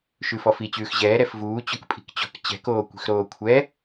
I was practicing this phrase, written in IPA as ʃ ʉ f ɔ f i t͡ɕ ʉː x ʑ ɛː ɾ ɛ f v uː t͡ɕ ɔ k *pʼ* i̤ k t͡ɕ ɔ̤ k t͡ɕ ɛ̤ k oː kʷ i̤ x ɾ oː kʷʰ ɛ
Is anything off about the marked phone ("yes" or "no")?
no